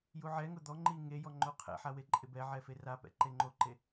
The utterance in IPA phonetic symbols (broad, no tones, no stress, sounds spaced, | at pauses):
j u ʕ ɛ ŋ ʊ d̪ ɔ ŋ͡ǃ i ŋ e j ɔ ŋ͡ǃ o qʰ ɛ̰ ħ a w e ǃʼ ɪ b ɛ ʕ ɛ f e r a p ɛ̰ ǃ e ŋ͡ǃ o ǃ e